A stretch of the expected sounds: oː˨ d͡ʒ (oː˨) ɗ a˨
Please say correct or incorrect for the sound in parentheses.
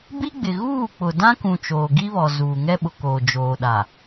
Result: correct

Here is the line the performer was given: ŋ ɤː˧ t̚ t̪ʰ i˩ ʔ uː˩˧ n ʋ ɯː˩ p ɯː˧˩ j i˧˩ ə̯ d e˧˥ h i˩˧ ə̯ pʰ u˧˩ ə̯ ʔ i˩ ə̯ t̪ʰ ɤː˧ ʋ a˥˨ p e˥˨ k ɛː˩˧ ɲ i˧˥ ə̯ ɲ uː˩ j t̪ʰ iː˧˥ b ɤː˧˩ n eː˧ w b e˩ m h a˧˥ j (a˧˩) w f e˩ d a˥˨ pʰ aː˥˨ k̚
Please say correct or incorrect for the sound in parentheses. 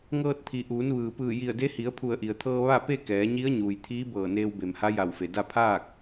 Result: correct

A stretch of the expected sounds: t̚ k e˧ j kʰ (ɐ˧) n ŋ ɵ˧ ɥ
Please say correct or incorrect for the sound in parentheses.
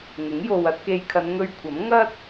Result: incorrect: ɐ˨˧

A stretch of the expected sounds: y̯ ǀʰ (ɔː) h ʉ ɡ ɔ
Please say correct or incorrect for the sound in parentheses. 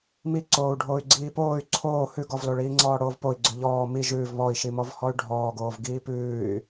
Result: incorrect: oː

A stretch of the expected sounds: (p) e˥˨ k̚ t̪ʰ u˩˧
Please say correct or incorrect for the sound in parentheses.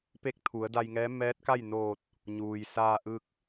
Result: correct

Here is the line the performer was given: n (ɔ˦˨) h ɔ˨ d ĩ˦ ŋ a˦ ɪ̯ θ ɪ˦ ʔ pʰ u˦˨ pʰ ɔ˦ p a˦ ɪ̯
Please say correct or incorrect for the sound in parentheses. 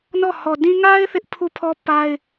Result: correct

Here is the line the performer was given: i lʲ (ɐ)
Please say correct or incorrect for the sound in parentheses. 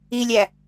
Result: incorrect: æ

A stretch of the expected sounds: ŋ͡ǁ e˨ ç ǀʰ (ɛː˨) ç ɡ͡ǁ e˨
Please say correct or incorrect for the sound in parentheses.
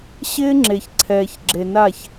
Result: correct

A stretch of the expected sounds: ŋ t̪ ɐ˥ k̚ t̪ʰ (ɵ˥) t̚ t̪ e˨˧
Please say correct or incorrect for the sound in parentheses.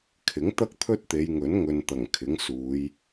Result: correct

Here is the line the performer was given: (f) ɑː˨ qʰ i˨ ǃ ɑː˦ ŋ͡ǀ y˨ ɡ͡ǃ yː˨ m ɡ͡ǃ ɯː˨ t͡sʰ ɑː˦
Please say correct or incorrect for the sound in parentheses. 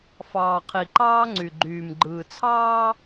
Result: correct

